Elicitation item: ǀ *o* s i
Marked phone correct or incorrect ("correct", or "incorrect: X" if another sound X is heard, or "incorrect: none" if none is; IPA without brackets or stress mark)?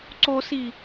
correct